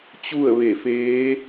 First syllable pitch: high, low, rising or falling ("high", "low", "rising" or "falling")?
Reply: falling